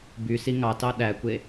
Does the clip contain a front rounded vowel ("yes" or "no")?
yes